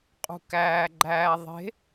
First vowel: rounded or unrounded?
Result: rounded